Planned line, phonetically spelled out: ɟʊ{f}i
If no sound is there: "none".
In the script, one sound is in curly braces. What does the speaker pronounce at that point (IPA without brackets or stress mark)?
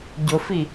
f